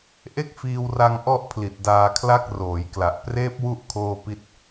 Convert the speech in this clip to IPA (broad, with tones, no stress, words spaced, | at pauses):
ʔe˥˩k̚fiː˧wra˧ŋ ʔɔ˥˩ʔpʰli˨˩t̚ daː˧kʰla˥˩k̚roː˩˦jkla˨˩ʔ preː˦˥p̚wu˦˥ʔ kʰoː˥˩pi˥˩t̚